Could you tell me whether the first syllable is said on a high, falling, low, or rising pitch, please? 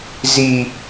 high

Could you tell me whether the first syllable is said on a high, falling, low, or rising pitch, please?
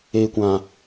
low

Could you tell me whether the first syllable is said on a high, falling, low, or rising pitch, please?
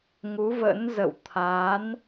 rising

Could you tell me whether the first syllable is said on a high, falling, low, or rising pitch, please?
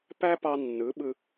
high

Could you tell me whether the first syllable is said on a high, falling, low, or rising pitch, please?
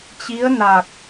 rising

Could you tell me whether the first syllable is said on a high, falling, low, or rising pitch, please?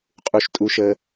high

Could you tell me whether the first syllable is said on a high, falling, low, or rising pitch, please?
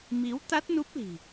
rising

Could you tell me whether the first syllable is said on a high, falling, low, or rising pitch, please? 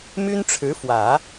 high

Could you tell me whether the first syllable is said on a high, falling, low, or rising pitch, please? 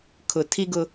low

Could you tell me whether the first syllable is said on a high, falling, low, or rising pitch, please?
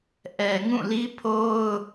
low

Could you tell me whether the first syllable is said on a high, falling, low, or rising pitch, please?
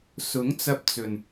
rising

